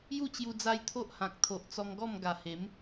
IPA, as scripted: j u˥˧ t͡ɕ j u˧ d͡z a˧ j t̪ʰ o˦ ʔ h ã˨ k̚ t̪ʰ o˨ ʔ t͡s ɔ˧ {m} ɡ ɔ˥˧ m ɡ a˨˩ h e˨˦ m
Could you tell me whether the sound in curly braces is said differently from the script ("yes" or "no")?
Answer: yes